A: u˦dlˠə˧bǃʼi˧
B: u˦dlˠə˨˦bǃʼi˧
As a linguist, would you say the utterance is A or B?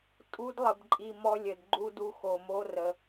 A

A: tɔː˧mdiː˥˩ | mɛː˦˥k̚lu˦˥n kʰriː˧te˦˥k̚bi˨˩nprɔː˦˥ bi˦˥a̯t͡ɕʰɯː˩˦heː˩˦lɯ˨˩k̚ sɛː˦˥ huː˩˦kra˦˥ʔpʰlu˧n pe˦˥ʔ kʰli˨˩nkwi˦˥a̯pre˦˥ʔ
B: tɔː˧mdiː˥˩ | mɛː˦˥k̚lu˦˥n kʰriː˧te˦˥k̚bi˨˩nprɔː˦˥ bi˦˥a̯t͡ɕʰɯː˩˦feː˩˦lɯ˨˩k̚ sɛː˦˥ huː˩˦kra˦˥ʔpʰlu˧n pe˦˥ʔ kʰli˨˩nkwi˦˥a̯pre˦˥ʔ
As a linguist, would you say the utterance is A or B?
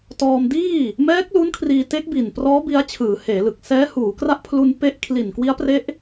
A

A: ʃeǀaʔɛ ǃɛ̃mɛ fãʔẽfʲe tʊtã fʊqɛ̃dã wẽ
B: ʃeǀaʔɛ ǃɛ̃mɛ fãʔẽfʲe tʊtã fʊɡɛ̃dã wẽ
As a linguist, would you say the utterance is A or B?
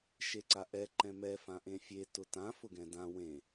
B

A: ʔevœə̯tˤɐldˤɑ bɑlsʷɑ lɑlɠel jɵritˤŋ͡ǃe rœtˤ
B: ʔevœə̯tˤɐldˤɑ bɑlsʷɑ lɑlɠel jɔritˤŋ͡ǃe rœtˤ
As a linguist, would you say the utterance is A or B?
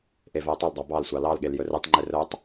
A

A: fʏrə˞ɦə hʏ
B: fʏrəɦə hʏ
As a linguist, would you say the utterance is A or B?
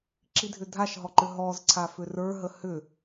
A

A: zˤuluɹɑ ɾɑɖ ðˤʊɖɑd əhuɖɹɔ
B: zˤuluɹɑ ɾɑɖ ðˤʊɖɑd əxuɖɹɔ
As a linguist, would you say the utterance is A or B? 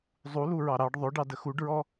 B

